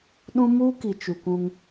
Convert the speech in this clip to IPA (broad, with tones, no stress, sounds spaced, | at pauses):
ɗ ũ˦ m u˦ k i˨ t͡ʃ u˨ kʷ ũ˦ ŋ